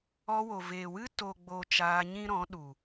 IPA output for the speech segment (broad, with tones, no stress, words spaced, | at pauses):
ɔ˧ wo˨veː˨wɨ˦ to˨ɡ͡bo˨ t͡ʃaː˧ɲĩ˦ɾɔ̃˨˦ɗu˨